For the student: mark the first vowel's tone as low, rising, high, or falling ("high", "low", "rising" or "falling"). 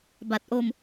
low